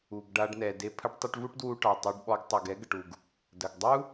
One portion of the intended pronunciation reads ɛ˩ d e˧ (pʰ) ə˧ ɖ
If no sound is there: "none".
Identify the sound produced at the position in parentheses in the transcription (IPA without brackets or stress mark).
pʰ